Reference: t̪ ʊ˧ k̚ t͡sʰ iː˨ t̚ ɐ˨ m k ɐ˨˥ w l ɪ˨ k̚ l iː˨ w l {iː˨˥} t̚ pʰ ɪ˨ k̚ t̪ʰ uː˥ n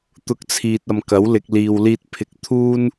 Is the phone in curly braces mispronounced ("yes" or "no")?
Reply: yes